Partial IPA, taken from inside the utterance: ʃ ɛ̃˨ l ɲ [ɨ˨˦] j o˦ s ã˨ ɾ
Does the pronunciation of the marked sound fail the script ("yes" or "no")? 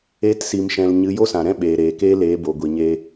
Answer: no